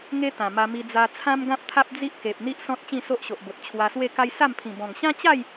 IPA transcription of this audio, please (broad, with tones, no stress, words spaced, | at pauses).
ŋe˦t̪ã˨˩ma˧ mi˧d͡za˧t͡sʰã˦m ɡã˦p̚t̪ʰa˦p̚ d͡zi˦ʔke˨p̚n̪i˦ʔsɔ̃˦t̚ t͡ɕĩ˥˧so˦ʔɕo˨ʔbo˨t̚ t͡ɕʰwa˧swe˥˧ka˦j sa˥˧m pʰĩ˨˩bɔ̃˨˩ŋ ɕã˦t͡ɕa˥˧j